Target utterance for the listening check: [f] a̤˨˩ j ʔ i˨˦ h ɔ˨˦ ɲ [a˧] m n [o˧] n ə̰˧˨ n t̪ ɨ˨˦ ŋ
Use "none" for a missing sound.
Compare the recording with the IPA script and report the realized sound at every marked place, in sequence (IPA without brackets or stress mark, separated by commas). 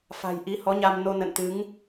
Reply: f, a˧, o˧